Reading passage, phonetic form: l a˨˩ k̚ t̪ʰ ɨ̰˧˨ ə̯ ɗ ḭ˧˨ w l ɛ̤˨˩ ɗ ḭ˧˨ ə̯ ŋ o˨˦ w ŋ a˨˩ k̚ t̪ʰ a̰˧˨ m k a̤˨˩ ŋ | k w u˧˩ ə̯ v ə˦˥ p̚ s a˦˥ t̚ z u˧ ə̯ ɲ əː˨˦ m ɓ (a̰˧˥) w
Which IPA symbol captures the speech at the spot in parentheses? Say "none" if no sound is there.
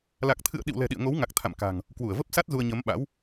a̰˧˥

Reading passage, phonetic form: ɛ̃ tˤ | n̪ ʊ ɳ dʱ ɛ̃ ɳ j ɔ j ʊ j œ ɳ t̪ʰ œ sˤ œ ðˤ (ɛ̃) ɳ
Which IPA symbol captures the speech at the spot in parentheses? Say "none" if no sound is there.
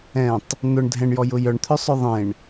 ẽ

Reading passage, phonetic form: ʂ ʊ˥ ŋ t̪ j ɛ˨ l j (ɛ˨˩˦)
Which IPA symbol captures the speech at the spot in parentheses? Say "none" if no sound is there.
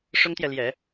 ɛ˨˩˦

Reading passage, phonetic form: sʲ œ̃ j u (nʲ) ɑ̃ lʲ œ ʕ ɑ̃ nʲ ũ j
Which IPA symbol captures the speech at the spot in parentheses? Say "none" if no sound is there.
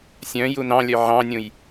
n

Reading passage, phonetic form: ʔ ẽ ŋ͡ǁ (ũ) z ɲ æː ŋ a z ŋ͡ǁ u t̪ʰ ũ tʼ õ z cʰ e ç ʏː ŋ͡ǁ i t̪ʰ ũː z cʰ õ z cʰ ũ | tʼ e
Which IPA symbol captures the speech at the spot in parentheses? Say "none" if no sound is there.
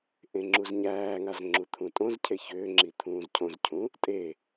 u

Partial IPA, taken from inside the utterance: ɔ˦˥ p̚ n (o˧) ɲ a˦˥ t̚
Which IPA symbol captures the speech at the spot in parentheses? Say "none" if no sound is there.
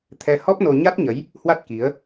o˧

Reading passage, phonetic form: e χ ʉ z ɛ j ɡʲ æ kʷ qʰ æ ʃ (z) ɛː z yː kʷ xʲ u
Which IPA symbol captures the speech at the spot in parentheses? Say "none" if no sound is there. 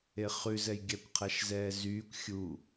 z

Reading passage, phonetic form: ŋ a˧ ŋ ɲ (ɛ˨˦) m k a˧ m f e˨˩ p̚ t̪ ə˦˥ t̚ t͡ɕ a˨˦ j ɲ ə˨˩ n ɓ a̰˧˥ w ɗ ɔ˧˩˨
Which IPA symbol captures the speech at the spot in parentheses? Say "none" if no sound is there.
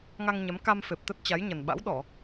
ɛ˨˦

